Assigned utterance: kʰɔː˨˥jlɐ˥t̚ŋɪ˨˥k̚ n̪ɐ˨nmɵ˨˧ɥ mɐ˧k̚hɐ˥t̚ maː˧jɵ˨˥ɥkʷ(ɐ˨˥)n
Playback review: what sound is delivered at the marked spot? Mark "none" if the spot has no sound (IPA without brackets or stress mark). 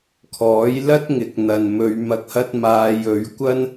ɐ˥